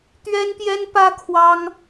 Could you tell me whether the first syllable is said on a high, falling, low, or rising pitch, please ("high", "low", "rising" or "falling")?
high